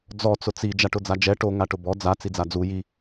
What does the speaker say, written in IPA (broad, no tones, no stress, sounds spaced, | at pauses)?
d͡z ɔ t͡s ʊ t͡s i d͡ʒ a ʈ ʊ d͡z a d͡ʒ ɛ ʈ o ŋ a ʈ ʊ b ɔ d͡z a t͡s i d͡z a d͡z u j i